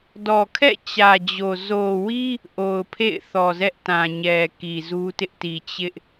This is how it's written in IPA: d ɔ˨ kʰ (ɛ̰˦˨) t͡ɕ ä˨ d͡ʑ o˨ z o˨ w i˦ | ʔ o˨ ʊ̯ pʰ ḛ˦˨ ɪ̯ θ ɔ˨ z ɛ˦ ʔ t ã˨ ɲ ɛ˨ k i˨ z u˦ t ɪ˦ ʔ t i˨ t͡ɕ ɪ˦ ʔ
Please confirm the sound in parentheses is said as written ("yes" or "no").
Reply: yes